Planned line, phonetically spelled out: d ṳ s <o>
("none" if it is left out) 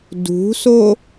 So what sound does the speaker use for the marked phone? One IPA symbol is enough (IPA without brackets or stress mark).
o